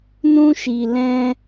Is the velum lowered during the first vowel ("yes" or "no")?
yes